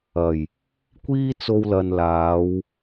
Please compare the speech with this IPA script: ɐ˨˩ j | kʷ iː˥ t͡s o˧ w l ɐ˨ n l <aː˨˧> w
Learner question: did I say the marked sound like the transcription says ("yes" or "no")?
yes